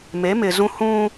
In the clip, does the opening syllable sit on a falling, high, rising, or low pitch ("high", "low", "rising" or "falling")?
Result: rising